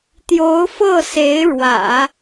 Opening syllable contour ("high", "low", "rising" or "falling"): rising